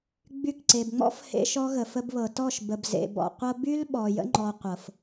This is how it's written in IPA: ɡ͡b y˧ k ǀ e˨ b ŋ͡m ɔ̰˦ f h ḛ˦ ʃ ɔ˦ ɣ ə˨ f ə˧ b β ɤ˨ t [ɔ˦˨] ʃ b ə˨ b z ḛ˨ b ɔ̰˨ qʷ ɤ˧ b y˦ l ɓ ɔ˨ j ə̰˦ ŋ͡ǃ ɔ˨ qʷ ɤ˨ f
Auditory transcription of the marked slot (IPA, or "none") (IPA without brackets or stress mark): ɔ˦˨